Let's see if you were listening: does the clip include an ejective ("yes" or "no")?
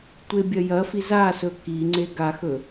no